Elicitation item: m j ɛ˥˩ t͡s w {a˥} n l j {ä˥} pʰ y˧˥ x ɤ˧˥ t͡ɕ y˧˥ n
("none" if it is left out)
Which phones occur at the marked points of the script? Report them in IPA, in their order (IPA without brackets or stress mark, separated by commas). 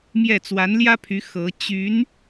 a˧˥, ä˥